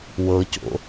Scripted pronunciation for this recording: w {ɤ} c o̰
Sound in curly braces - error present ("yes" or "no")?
no